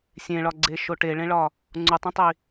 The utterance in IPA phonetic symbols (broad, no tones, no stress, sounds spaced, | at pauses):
sʲ ẽ ɭ ɒ ɡ͡ǀ e ʃ o ʈ e ɭ ẽ ɭ ɒ | ŋ͡ǀ u tˤ ĩ tˤ i